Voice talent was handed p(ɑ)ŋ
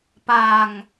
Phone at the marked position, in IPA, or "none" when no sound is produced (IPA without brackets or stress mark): a